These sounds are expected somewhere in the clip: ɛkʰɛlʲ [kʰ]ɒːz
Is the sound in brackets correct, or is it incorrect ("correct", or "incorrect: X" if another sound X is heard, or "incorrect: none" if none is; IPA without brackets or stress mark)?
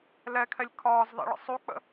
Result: correct